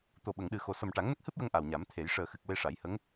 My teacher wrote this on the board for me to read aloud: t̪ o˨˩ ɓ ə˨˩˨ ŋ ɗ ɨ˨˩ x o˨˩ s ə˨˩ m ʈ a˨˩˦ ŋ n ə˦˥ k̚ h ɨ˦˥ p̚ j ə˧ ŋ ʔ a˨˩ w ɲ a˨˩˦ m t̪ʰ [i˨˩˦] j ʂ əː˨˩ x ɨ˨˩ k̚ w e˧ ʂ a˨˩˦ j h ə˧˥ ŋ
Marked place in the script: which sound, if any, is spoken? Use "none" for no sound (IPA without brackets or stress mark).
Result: e˨˩˦